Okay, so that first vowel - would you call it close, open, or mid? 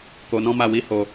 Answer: mid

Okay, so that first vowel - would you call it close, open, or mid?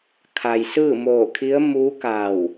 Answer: open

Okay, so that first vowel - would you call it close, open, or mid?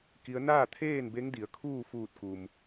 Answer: close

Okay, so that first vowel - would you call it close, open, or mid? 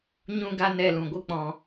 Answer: close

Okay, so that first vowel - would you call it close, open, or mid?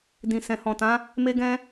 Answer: close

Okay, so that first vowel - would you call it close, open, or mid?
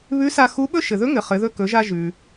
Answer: close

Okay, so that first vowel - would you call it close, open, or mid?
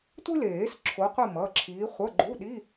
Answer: close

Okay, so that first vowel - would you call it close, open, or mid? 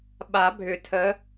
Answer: open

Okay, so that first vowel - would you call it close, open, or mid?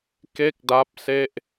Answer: mid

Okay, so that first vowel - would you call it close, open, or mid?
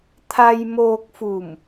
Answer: open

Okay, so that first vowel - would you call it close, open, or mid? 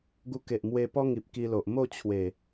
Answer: close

